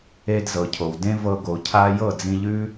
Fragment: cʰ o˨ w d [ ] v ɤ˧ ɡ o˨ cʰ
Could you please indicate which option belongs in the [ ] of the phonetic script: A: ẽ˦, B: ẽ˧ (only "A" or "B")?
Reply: A